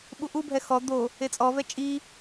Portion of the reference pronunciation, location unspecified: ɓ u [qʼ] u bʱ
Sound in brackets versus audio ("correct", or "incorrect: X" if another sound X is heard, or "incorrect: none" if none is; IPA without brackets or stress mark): incorrect: ʔ